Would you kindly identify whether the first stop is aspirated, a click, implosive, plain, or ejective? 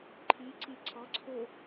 click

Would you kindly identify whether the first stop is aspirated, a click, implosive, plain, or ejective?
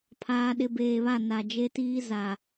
aspirated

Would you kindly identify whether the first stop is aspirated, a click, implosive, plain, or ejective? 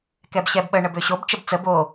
plain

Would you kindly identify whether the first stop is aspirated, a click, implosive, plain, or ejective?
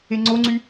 click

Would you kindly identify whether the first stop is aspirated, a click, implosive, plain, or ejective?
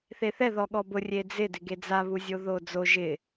implosive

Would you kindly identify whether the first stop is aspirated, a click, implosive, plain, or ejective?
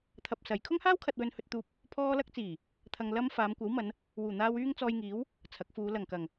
aspirated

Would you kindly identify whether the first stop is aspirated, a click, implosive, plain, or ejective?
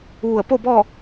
plain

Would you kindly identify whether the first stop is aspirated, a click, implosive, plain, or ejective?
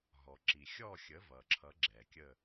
click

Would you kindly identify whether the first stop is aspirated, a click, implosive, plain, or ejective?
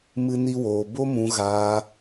plain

